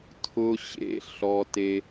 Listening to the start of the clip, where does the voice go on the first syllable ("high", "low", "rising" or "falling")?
high